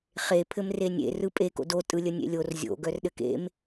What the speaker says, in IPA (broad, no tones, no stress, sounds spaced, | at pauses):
χ e pʰ ɘ m r e nʲ ḛ r ɯ pʼ e k o̰ d o tʼ ɯ lʲ ə nʲ ḛ lʲ o r zʲ o̰ ɡ œ r ɗ ɘ k ḛ m